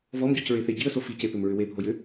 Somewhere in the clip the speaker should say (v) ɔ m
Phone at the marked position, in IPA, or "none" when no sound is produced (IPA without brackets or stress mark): v